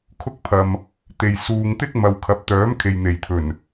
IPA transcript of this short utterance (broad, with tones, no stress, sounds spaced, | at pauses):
kʰ ʊ˥ k̚ pʰ ɐ˨ m | t̪ e˨ j s uː˨ ŋ t̪ ɪ˥ k̚ m ɐ˨ w kʰ ɐ˨˥ p̚ t̪ œː˨˥ m kʰ e˨ j n̪ e˨˩ j t̪ʰ ɵ˨˩ n